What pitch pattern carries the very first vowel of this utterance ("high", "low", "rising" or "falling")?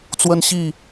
high